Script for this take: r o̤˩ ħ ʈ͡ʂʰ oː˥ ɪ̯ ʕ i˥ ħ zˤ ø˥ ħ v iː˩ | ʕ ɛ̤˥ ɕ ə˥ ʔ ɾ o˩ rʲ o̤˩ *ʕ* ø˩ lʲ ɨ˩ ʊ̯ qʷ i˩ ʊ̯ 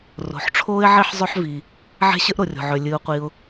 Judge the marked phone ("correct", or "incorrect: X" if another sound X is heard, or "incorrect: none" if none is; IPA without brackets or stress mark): correct